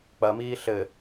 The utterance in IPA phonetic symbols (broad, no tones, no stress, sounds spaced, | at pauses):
k͡p ɐ m iː ɬ ɘ